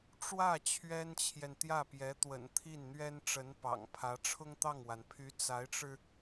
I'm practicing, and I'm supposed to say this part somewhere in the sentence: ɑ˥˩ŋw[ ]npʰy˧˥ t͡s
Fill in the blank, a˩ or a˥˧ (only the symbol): a˩